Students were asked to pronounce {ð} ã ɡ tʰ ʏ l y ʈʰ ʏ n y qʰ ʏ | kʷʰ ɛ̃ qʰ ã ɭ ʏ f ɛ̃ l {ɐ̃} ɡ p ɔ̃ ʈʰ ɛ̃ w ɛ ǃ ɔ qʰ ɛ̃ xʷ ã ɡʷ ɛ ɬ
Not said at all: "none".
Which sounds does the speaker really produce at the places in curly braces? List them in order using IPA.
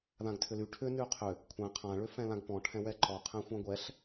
ð, ã

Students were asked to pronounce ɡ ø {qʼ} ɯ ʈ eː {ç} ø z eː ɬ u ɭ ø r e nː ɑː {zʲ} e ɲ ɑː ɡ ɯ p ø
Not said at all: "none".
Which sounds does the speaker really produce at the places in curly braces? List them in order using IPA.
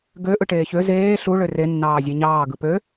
ʔ, ç, zʲ

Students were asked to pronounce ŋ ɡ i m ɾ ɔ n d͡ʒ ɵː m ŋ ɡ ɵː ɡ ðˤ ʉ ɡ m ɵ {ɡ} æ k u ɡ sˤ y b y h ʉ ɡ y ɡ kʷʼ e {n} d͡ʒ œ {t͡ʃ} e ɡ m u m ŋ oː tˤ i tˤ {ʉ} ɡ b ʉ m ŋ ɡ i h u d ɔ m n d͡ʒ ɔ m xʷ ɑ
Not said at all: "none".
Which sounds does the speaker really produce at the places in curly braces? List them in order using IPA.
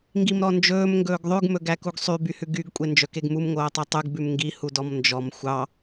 ɡ, n, k, ʉ

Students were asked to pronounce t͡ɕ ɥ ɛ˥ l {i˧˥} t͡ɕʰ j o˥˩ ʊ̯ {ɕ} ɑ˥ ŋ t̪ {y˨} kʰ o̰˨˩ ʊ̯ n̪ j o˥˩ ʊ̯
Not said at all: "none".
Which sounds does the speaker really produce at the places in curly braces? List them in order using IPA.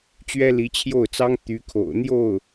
i˧˥, t͡s, y˧˥

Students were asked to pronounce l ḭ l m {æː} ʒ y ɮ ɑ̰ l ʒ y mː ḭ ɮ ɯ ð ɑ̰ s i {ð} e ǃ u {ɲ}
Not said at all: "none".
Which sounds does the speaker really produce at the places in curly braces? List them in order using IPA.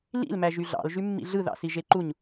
æ, ʒ, ɲ

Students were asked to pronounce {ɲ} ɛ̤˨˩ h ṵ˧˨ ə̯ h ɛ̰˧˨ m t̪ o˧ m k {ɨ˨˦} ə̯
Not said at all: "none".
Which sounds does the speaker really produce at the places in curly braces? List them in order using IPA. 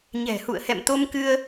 ɲ, ɨ˧

